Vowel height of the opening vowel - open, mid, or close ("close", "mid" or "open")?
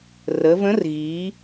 mid